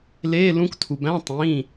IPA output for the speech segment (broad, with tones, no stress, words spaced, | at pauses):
leː˧˥˧lũ˧˥ktʰu˩ bæ̃˧˥˧ tˤĩː˩˧˩